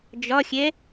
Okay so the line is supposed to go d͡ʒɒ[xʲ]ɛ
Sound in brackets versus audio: correct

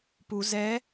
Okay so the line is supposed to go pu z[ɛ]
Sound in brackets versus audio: correct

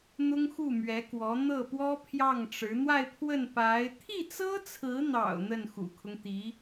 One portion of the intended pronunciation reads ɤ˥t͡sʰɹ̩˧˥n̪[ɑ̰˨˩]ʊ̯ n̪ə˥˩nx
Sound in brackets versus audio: correct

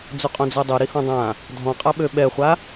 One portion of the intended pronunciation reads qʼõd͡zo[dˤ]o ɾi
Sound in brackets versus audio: correct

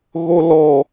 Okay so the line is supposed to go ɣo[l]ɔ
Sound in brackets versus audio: correct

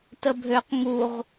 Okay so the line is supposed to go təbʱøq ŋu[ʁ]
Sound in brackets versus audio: correct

